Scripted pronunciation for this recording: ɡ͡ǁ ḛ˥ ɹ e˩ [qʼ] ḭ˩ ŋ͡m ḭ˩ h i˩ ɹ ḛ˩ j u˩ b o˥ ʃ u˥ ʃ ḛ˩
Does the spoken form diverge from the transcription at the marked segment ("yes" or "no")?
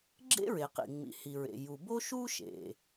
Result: yes